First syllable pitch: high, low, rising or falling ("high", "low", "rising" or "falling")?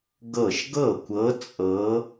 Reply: falling